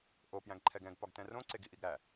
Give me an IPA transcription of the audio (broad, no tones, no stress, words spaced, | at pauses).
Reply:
ʔo pjæ̃ɡǃʰɛɡɛ̃ɡ pɒɡtɛ̃rõ ǀeɡiʔiɡɾæ